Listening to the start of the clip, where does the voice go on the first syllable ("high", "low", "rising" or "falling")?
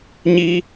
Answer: high